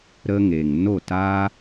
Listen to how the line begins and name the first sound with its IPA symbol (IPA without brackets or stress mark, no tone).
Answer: ɾ